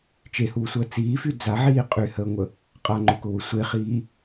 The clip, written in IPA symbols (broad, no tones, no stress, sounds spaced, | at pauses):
t͡ʃ e h uː sʷ əː t͡s iː f y d͡z a ʕ iː qʼ y h əː ŋʷ ə | qʼ a ŋ͡ǃ ʊ k ʊ w ʊ sʷ e χ iː